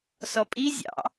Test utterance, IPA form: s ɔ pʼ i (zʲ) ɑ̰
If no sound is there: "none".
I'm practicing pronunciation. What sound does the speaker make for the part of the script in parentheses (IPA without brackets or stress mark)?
zʲ